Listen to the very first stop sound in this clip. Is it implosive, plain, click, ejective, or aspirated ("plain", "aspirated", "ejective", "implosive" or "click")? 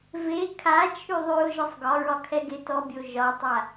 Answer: aspirated